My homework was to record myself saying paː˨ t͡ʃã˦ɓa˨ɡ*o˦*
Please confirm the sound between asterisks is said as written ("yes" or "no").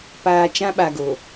no